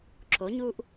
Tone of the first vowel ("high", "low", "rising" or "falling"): rising